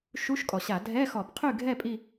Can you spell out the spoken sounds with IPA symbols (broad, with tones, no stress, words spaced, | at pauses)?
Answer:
ʃu˧˥˧ʃkʼɔ˩ɕa˧˩˧ dʱɛ˧˥˧xɔ˧˩˧b qʰy˥˨ɡʱɛ˥˨ pʼi˥˨